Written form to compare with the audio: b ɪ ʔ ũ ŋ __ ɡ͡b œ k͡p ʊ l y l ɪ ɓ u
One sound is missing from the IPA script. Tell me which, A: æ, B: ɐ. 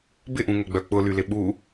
B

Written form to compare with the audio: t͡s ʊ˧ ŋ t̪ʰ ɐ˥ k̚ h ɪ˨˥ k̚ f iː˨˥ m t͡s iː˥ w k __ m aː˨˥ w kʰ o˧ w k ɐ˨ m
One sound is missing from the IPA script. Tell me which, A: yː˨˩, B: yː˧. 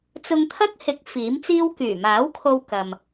A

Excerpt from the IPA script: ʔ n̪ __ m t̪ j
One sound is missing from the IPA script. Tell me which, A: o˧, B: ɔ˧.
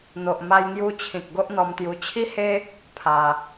B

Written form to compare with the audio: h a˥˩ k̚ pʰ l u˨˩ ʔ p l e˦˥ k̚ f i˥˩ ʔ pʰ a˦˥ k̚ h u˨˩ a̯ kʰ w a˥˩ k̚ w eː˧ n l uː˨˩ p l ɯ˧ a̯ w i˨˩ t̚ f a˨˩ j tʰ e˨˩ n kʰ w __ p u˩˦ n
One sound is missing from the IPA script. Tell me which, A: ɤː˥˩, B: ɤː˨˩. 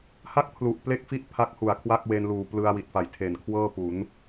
A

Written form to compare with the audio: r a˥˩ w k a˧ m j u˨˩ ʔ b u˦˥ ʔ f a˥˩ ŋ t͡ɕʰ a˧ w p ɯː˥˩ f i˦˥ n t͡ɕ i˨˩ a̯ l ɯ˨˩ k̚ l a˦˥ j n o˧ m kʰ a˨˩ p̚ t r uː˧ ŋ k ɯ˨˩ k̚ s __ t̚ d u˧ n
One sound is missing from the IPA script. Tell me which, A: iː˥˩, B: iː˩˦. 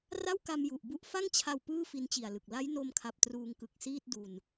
A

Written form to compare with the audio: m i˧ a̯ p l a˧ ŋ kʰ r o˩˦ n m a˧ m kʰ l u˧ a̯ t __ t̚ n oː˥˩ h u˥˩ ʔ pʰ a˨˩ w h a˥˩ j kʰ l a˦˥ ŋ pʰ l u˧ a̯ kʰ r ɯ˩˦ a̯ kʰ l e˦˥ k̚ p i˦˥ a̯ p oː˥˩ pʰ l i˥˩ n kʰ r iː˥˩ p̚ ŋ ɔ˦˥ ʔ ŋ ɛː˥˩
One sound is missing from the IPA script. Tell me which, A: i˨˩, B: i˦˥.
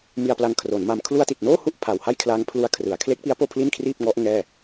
A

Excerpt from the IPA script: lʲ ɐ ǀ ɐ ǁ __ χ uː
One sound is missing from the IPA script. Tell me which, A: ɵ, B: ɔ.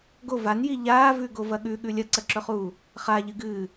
A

